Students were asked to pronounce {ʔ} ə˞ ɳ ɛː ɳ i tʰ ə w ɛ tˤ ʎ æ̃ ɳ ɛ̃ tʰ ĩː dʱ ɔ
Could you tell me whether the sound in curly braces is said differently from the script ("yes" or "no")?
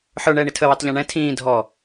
yes